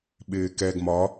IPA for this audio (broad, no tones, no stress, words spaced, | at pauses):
ɓɪːkɛɡ mɒ